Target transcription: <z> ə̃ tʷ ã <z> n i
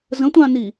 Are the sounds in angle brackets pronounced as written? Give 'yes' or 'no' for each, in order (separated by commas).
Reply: yes, no